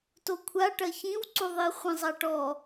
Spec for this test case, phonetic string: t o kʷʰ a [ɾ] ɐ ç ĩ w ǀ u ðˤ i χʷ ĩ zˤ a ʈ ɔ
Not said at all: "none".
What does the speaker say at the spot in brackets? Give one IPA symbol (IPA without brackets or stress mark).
ʈ